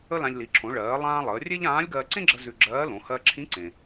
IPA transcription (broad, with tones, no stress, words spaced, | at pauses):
ə˥lã˧ʎ li˩˧ǁʰõ˩˧ɭɜː˩˧lˠãː˧ lˠəː˩˧rʲe˥ʎãː˧˥lʲɡɜ˧ ǀẽ˥ɡ͡ǁə˧ zʉ˧ɡ͡ǁɜː˧˥lõ˩˧ hɜ˧ǁʰĩ˧˥ǀẽ˩